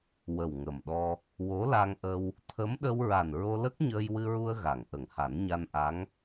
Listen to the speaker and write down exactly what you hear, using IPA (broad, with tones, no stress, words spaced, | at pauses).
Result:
wə˨˩wŋə˨˩mɗɔ˧ | wo˧˥la˧ŋʔə˧w | t̪ʰə˧˥mɗə˧wɹa˨˩n ɹo˧lə˦˥k̚ ɲəː˧jwɨ˧ɹu˧ə̯ ɣa˨˩˨ŋ ʔə˨˩˨ŋha˨˩˦nɲa˧nʔa˧˥ŋ